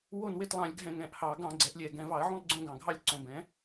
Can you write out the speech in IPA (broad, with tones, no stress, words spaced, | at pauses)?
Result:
wo˦˨nwe˦˨tlˠɑ̃˧˩˧lʲɡʱɛ̃˧˩˧ ŋɛ̃˨˩ʔhɑ˧˩˧ ɡɑ̃˧˩˧ ɡ͡ǀɛ˩˥ʔlʲɛ˨˩ ɡɛ̃˨˩vɑ˧˩˧ə̯ʕũ˦˨lˠ ɡ͡ǀõ˦˨ɡɑ̃˨˩ɡʱɑ˦˨lʲ ǀõ˨˩bɛ̃˩˥